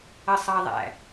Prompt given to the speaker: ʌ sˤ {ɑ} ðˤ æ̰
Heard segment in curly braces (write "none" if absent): ɑ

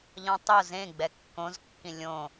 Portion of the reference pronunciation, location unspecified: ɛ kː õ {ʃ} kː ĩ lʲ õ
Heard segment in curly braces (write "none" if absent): z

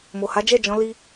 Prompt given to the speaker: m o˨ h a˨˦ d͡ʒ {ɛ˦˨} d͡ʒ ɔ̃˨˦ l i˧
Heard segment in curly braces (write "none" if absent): ɛ˦˨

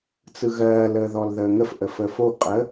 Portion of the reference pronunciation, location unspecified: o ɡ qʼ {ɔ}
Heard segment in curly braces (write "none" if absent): ə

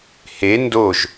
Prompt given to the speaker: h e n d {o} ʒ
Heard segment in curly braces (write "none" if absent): o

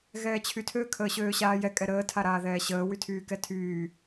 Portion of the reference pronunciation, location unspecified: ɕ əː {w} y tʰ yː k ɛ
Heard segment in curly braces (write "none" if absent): w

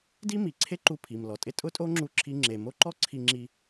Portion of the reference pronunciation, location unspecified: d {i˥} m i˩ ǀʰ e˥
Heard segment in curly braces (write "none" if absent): i˥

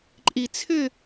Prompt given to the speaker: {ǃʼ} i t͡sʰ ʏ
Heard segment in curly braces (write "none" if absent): ǃʼ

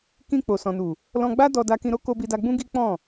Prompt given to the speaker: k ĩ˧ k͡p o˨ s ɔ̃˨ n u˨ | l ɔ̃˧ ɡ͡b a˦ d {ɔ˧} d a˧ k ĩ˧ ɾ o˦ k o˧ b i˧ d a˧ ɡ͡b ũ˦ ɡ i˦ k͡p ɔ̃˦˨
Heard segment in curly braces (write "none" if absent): ɔ˧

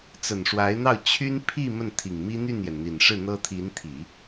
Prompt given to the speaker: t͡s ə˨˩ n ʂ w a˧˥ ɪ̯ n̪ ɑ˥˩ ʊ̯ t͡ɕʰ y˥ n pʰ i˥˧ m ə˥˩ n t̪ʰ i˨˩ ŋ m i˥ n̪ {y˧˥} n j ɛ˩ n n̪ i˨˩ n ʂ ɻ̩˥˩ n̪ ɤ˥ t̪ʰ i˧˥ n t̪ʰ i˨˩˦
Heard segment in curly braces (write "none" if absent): y˥˩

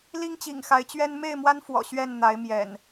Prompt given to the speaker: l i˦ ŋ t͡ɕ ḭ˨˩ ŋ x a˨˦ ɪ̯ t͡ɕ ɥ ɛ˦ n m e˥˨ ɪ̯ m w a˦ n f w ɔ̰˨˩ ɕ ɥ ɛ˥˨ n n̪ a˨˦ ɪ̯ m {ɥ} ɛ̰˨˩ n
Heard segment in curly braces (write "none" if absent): j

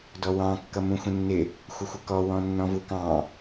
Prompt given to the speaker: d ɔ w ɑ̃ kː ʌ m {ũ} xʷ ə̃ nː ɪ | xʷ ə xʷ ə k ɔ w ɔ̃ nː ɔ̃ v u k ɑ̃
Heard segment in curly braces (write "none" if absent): ũ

